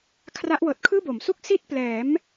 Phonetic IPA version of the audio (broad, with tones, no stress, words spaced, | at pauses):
kʰra˦˥ʔwɤː˨˩t̚ kʰɯː˥˩bo˩˦m su˥˩k̚ si˥˩t̚plɛː˩˦m